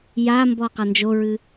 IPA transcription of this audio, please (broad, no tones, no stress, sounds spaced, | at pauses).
j a m b ɔ q a n d͡ʒ o ɹ ɨ